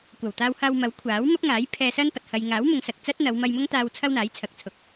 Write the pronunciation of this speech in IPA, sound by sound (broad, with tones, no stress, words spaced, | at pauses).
kʷɐ˨˩wt̪aː˧whaː˧w mɐ˨˥wkʷʰaː˨˥wmɐ˥p̚ŋaː˨˥j pʰɛː˧sɐ˥npɐ˨t̚ hɐ˨jŋaː˨˥w mʊ˨˧ŋsɐ˨k̚t͡sɐ˥t̚n̪ɐ˨˧w mɐ˧jmʊ˥ŋt̪aː˧w t͡sʰɐ˥wn̪aː˨˥jt͡sʰɐ˨k̚t͡sʰʊ˨k̚